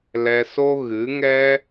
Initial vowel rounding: unrounded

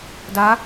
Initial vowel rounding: unrounded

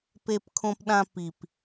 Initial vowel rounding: unrounded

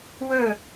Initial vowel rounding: rounded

